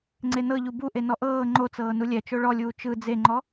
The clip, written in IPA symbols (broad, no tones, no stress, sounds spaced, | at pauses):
ŋ͡ǀ e n ɤ ʎ u b u ʔ e n ɔ ʔ ɤː ŋ͡ǃ o t͡s ɤː n u lʲ ɛ t͡ʃ o ɭ ɔ lʲ uː t͡ʃ ɯ d͡z e ŋ͡ǃ ɔ